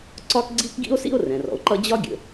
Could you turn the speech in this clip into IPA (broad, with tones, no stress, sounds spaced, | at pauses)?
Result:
ǀ ɒ˥ k ɡ͡ǀ i˥ k ɡ ḭ˥ o̯ s ḭ˥ o̯ r ɛ̃˩ r ɔ̰˩ o̯ ǃ ʌ˥ d͡ʑ ɒ˥ ɡʲ ə̰˩